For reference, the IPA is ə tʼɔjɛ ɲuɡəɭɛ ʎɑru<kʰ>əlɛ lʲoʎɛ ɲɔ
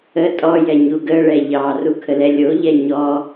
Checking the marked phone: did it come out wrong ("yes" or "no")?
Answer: no